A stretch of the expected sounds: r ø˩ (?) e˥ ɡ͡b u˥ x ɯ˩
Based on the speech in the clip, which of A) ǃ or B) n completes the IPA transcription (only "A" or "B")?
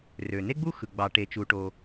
B